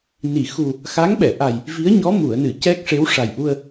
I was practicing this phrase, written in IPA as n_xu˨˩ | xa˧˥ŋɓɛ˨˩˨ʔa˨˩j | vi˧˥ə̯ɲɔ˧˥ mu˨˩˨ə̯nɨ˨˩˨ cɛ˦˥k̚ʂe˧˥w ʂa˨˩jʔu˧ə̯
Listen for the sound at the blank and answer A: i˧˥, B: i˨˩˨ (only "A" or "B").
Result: B